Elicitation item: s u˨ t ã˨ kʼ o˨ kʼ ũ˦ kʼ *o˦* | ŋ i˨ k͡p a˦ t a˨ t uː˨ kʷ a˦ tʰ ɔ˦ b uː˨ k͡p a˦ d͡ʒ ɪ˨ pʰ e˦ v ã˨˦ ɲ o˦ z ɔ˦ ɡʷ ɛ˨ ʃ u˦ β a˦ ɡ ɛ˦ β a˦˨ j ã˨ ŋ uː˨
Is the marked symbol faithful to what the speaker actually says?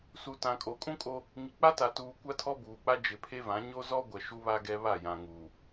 yes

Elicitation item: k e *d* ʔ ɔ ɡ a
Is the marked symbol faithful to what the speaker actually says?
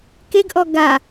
no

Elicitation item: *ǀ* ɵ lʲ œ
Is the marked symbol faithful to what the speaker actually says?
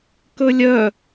no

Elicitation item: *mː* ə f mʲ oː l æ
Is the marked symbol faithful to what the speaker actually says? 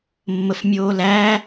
yes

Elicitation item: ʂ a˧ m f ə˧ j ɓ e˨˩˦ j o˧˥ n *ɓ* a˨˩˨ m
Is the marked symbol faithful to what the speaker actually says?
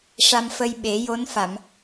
no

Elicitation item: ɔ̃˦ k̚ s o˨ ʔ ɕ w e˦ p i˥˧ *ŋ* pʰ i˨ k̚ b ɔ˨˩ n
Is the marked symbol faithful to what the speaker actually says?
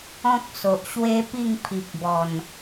yes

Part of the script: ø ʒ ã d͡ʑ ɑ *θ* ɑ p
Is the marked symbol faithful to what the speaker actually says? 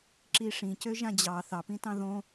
yes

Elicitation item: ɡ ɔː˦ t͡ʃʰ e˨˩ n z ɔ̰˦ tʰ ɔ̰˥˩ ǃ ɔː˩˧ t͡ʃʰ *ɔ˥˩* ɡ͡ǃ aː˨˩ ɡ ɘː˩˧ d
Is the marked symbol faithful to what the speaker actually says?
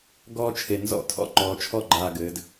yes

